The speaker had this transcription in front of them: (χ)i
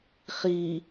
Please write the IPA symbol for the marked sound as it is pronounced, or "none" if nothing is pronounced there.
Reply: χ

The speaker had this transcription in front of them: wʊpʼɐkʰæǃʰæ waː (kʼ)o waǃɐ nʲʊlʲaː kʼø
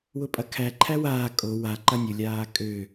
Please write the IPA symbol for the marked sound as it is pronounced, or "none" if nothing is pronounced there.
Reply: kʼ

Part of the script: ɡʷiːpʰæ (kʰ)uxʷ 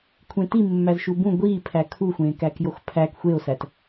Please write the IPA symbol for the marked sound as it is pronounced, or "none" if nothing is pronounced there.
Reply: kʰ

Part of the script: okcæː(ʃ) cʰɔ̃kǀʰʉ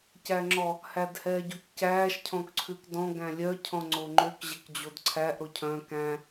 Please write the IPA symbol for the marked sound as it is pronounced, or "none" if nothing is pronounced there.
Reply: ʃ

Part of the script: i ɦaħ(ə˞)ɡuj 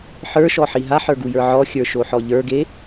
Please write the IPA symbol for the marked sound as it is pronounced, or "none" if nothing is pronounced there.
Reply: ə˞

